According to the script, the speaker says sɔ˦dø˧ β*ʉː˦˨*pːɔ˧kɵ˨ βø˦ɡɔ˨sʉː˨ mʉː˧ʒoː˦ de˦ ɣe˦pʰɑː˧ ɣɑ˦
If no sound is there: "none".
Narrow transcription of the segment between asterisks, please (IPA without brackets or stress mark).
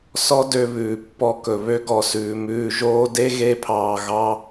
ʉː˨